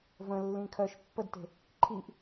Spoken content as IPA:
v ə̃ lː ĩ kʰ œ ʃ pː ə d t e̤ | ǃʰ i ʔ

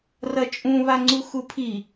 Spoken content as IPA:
r ɐ t͡ʃʼ ũ β a ŋ͡ǀ u x u pʰ i

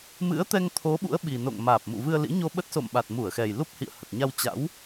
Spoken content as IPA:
m ɨ̰˧˥ ə̯ t̪ ɛ˧ ŋ t̪ʰ o˨˦ ɓ ṵ˧˥ ə̯ ɓ i˨˩ n o̰˧˨ ŋ m aː˨˩ p̚ m ṵ˧˨ v ɨ˧ ə̯ l ḭ˧˥ ɲ o˧ ɓ ə˦˥ t̚ s o̰˧˨ m ɓ a˨˩ t̚ m u˧˩ ə̯ x ɛ˨˩ j l u˦˥ p̚ h ḭ˧˨ ə̯ h ə˨˩ t̚ ɲ a˧ w t͡ɕ a̰˧˥ w

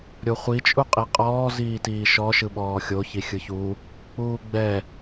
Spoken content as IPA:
ɾʲ o χʷ i t͡ʃʼ u qʼ i qʼ ɔː z iː t iː ʃ ɔ ʃ ɯ ɓ ɔː xʲ o ç i xʲ ɯ ç u | k͡p uː ɡ͡b ɛ

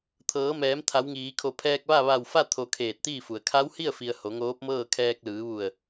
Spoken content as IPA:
t̪ʰ ɤː˩˧ m ɛː˩˧ m t̪ʰ a˩˧ w ŋ iː˩˧ kʰ o˧˩ pʰ ɛː˧ k̚ ʋ a˥˨ ʋ a˧˩ w f a˥˨ t̪ʰ o˧ kʰ eː˧˩ t̚ t̪ iː˥˨ f u˩ ə̯ kʰ a˧˥ w h i˥˨ ə̯ f i˩ ə̯ h o˩˧ ŋ oː˧˥ p̚ m ɤː˥˨ kʰ ɛː˧ k̚ l ɯː˩˧ ʋ u˧˩ ə̯

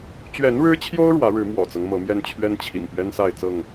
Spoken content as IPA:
t͡ɕ ɥ ɛ˨˦ n ɻ ɻ̩˦ t͡ɕʰ j o˦ ʊ̯ ɻ w ä˨˦ ɻ ɻ̩˨˦ m w ɔ̰˨˩ t͡s ɤ˦ ŋ m ɤ˨˦ m j ɛ˦ n t͡ɕʰ ɥ ɛ˦ n t͡ɕʰ ḭ˨˩ ŋ p ɥ ɛ˦ n s a˥˨ ɪ̯ t͡s ɤ˥˨ ŋ

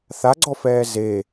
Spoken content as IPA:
θ a ɡ͡ǀ ɔ f ɛː z e

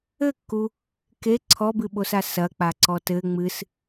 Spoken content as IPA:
ɘ kː u | k e ǀʰ ɔ b ɨ ɓ o s a s ɐ k͡p a ǀ ɔ t ɘ ŋ͡m ɨ s

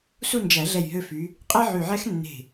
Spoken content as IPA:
s u˥˨ n d͡ʒ æ˨˩˦ ɮ ɛ˧˩ j ɦ ø˧ f y˨˥ | qʼ ɛ˥ ʕ y˧˩ ʕ ɛ˥ x nː e̤˧˩

